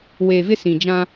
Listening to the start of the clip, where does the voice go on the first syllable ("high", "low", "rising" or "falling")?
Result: low